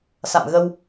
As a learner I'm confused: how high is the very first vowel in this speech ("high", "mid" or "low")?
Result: low